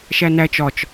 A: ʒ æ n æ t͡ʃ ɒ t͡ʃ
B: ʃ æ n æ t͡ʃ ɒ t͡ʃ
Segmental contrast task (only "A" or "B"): B